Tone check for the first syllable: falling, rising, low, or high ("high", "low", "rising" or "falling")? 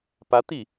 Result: rising